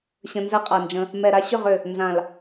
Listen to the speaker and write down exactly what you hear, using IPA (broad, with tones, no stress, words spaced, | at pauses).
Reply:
ɕə̃˧nzɛ˦qʼa˨nd͡ʒə̃˧ | mɛ˨ɾa˧ɕʏ˦˨ʁ ʏ˨ | nzã˨l